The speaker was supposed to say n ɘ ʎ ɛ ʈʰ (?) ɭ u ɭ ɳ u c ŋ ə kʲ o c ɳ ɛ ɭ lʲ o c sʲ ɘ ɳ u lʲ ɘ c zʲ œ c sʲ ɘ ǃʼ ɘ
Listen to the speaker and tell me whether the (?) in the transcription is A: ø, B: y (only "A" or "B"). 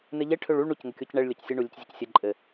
A